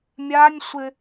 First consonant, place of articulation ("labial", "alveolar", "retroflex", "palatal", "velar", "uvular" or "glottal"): labial